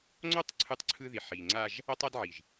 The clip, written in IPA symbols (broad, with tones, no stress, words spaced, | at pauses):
ŋ͡ǀo˦tˤ ǀʰɯ˦tˤǀʰɯ˦ði˨ ħi˨ ŋ͡ǀa˦ʒ | ʌ˦tˤa˦dʕi˨ʒ